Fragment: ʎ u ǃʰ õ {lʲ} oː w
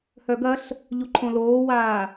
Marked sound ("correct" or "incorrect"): incorrect